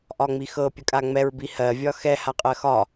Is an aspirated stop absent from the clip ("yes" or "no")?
yes